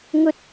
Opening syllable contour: high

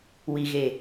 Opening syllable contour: low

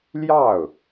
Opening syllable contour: falling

